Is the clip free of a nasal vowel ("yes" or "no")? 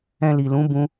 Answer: no